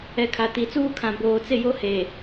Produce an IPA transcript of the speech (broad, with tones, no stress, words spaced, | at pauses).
ɛ˨ kʰa˨ti˨˦t͡suː˦kʰã˨ boː˨t͡sɪ˦˨jo˦ he˨